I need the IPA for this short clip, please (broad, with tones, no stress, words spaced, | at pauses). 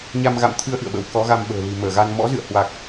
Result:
ɲa˧mɣa̰˧˨mt̪ʰɨ˧ə̯ ʔɨ̰˧˨ə̯ɓə̰˧˥w kɔ˨˦ɣa˧mɓə̤ː˨˩ li̤˨˩ məː˧˩ɣa˧n mɔ̰˧˥zɨ̰˧˨ə̯hwa˨˩k̚